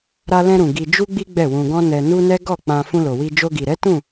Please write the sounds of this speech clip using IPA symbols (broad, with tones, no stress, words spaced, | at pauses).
ɾa˧lɛ̃˧ɾũ˨ ɡi˧d͡ʒu˦ɡ͡bi˦ ɡ͡bɛ˦˨wũ˧ɡɔ̃˦ nɛ˧nu˦nɛ˦ ɡɔ˦˨ k͡pã˧ fũ˧lo˨wi˧ d͡ʒo˧ɡi˨ɾɛ˨˦ tũ˦˨